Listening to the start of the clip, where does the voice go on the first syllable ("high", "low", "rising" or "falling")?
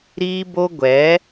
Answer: high